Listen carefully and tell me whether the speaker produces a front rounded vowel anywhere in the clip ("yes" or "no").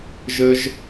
no